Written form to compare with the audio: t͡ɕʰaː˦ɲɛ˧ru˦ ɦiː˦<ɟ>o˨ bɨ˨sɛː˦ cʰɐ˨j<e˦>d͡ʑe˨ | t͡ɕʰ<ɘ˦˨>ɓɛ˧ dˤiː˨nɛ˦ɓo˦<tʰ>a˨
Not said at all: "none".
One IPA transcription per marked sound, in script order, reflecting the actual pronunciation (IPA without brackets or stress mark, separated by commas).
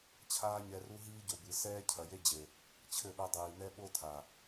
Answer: ɟ, e˦, ɘ˦˨, tʰ